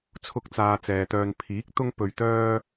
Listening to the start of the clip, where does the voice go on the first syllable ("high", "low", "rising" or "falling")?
high